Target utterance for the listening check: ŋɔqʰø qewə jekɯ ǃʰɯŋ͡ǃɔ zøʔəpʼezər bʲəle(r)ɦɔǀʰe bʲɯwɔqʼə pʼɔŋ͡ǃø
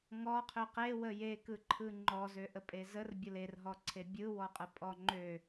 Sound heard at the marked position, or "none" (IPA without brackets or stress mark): r